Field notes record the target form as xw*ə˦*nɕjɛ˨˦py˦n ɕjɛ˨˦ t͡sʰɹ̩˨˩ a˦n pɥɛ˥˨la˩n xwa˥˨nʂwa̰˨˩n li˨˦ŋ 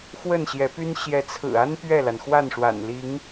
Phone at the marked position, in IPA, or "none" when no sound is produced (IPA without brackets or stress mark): ə˥˨